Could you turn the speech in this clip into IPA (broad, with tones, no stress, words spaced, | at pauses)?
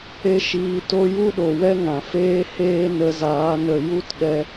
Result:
e˦ʃiː˧to˦ ju˦ɗo˨wɛ˦ ŋã˨feː˦heː˦ nə˧zaː˨˦ nə˨ ju˦tɗɛ˧